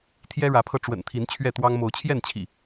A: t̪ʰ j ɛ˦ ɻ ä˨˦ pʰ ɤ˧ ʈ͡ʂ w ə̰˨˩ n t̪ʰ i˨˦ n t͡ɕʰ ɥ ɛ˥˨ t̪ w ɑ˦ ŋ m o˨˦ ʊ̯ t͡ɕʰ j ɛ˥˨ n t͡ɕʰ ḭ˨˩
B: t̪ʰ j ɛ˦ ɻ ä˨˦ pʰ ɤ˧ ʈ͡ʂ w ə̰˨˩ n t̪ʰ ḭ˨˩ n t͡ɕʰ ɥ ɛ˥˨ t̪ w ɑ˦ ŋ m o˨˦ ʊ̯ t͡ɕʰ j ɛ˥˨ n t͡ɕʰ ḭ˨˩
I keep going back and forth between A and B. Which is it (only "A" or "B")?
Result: A